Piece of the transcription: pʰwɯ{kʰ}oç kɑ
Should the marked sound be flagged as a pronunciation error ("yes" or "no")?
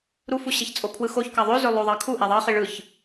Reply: yes